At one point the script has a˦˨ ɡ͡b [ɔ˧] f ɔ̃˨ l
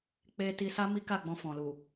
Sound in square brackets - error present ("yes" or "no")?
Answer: yes